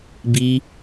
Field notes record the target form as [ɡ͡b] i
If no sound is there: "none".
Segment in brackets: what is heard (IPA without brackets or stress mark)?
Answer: b